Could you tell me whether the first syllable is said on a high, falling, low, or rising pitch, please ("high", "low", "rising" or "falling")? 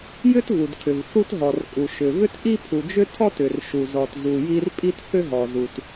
high